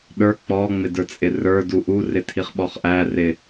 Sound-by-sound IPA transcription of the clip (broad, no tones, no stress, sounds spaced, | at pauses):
ɗ ə˞ k͡p ɔ ŋ͡m ɪ d ə˞ t͡sʼ ɪ r ə˞ d u ʔ u r ɪ tʰ i χ ɓ ɔ χ ʔ æ r ɪ